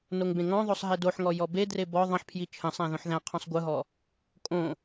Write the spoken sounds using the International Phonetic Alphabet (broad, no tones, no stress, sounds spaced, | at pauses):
n o ŋ b ẽ ŋ ɔ̃ ðˤ o sˤ ɦ e d o ħ ŋ ɔ j ɔ b e d r e b ɔ ðˤ ə̃ ħ pʰ j i t͡ʃʰ ə̃ sˤ æ̃ ð õ ħ ð æ̃ qʰ ɔ̃ sˤ ɡʷ ɯ ɦ ɔ | kʼ õ